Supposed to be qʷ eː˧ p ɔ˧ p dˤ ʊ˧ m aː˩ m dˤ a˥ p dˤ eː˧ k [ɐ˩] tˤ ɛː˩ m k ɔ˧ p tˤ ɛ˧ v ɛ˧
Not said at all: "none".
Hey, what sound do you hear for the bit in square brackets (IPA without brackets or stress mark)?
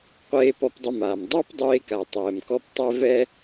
a˩